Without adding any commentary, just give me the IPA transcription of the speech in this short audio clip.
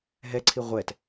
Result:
ɦ ɛ ǀʰ i ʁʷ ɛ t

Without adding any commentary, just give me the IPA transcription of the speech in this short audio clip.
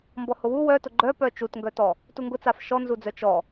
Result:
m b ɔ h ʊ w u w œ t ʊ ɡ͡ǃ œ p œ t͡ʃ u t ŋ ɡ œ t ɔ | t u ŋ ɡ ʊ t͡s a f ʃ ɔ n z u d͡z œ t͡ʃ ɔ

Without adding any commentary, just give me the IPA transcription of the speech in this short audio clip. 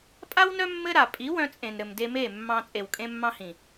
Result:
pʼ a˦ w n œ˦ mː ɘ˦ ɾ a˨ pʼ i˨˦ w œ̃˧ t͡sʼ ẽ˨ n ɾ ɘ˨ m d e˧ m e˦˨ mː ɑ̃˧ t͡sʼ e˨ w kʼ ẽ˧ mː ɑ̃˧ h ĩ˨

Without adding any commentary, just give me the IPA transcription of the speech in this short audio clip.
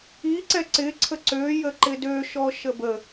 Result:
i ǀ ɛ ǀ ɪ ǀʰ ə ǀ ø j ə ǃ ɪ d ø ʃ ɔ ʃ ə b ə

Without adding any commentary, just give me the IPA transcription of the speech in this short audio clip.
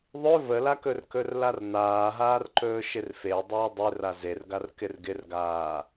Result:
ðˤ ɵ v ə l a k ɵ r k ɵ r l a r n aː ɦ aː r ǃ ɵː ʃ ɪ r f e dˤ ɵː dˤ e r a z e r ɡ a r k ɪ r ɡ ɪ r ɡ aː

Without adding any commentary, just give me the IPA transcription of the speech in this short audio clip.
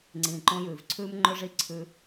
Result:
ŋ͡ǀ ĩː˨ ǃ õ˦ j ʉː˨ v ǀʰ ʉː˦ m ŋ͡ǃ ɵ˦ ʐ i˦ ǀʰ ʉ˦

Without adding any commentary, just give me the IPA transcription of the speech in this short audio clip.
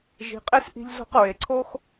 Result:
ʒ i̤˨ qʼ e˦ s ʔ i̤˧ ʎ z o̤˦ q ɹ e˨ ǀʰ o˦ x

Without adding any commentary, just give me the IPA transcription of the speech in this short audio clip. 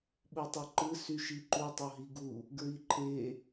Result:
ɓ u tˤ u ǃ ɯ s y ʃ i ǃ u tˤ o ɦ i ɡ u | ɡ ɹ i ǃʰ e

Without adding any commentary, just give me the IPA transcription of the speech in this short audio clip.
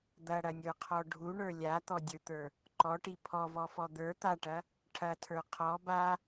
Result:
d̪ ɐ ɽ ɐ nʲ ə˞ qʰ ɔ ɖʱ u ɳ ə˞ lʲ a t̪ ɔ dʲ ə˞ t̪ ə˞ | ǃ ɔ ʈ i pʰ ɔ v ɔ f ɔ d̪ ə˞ t̪ a ʈ ɐ | ʈʰ ɐ tʰ ə˞ qʰ ɔ b a

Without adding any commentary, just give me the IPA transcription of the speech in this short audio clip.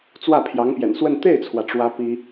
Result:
t͡s w ä˥˩ pʰ j ɑ˧˥ ŋ p j ɛ̰˨˩ n s w ə˥˧ n t̪ e˥˩ ɪ̯ t͡sʰ w ä˩ ʈ͡ʂ w ä˥ p i˥

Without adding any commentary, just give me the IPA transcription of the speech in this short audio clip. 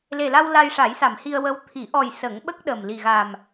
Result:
l e˨˩ l a˧ w l a˧ j ʂ a˨˩˦ j s a˨˩˨ m h i˧ ə̯ w ə˧˥ w t̪ʰ i˨˩˦ ʔ ɔ˨˩ j s ə˨˩˦ ŋ ɓ ə˦˥ k̚ ɗ ə˨˩ m l i˨˩ ɣ a˨˩ m

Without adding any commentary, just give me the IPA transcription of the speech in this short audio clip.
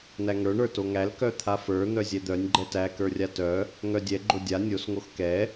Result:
n̪ æ ŋ ə˞ ɳ ə˞ t o ŋ æ l k œ t̪ʰ a f ə˞ n̪ œ zʲ ɛ d̪ œ nʲ ɡ͡ǃ ɛ t æ k ə˞ rʲ a t œ | ŋ œ dʲ ɛ ɡ͡ǃ o dʲ a nʲ o s ŋ o x k ɛ

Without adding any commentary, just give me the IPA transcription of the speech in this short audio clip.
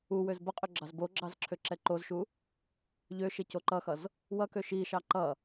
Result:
u w ø z b ʌ qʼ ø ɡ͡ǁ ɑ z b o ɡ͡ǁ ɑ z ǁʰ ø ǁ ɛ ǃ o z ʃ u | ʎ ø ʃ e c o ǃ ʌ x ʌ z | w ʌ k ø ʃ i ʃ ɑ ǃ ʌ

